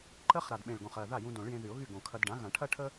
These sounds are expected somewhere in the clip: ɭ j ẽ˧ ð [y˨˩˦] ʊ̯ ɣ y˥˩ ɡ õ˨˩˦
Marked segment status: correct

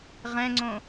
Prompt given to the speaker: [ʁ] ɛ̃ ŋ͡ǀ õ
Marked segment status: correct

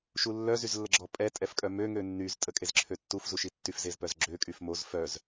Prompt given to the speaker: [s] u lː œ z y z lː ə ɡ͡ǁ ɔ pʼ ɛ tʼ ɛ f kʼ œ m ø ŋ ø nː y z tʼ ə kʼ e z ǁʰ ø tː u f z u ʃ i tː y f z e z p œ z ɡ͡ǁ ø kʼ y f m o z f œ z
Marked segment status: incorrect: ʃ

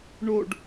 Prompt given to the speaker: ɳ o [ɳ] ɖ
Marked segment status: incorrect: none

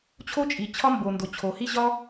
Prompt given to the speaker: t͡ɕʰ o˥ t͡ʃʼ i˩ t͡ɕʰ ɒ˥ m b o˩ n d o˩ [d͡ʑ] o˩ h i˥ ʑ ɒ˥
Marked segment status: incorrect: t͡ɕʰ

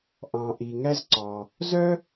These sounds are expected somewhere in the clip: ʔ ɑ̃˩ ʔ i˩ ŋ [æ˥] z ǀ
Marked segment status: correct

